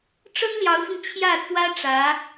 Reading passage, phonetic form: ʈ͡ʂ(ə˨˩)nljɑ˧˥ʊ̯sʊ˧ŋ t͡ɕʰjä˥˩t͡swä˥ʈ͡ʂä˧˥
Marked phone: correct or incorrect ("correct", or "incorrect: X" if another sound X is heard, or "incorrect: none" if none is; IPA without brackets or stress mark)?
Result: incorrect: ə˥